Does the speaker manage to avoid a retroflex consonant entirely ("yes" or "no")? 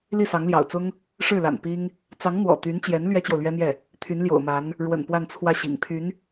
no